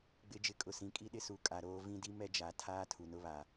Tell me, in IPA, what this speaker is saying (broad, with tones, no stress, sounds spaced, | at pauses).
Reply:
ɡ͡b ɪ˨˦ d͡ʒ ɪ˨ kʼ ʊ˨ s ĩ˨˦ kʼ i˦ ɗ ɪ˦ s u˨ kʼ a˨ ɾ oː˦ v ĩ˦ d i˦ m ɛ˦ d͡ʒ a˨˦ tʰ aː˦ tʰ u˨ n ʊ˦ β a˨